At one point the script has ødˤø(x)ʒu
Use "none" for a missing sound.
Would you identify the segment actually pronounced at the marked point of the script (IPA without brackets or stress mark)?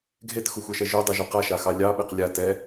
none